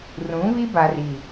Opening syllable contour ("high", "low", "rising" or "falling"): rising